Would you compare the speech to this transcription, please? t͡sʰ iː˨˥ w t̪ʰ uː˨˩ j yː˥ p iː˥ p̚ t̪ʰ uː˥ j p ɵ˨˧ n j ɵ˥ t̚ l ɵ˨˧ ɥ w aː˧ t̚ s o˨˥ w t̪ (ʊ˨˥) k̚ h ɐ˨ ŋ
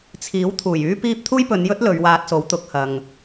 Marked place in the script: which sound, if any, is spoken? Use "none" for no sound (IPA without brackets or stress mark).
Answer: ʊ˨˥